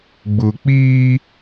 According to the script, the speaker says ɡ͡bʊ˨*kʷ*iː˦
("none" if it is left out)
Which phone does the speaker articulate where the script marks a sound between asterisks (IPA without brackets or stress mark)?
k͡p